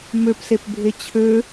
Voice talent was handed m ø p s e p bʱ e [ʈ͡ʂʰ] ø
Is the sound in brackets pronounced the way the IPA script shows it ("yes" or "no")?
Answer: no